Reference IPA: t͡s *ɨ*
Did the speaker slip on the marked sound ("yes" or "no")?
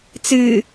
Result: no